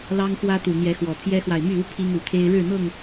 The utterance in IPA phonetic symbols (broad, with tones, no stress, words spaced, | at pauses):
lɑ˦ŋxwä˦t̪u˨˩ n̪jɛ˨˦xwɔ˨˩pʰjɛ˦xwa˨ɪ̯ my˥˨u˦ pʰi˦ŋu˨˩t̪ʰe˦ɪ̯ ɻɻ̩˥˨n̪ɤ˥˨ŋ